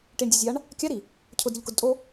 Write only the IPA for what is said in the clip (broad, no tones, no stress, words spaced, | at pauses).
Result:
ʈiɳdʲɛzʲaɳ | kʲaɾi | cʰʊdɾʲʊʎkʊdtʼo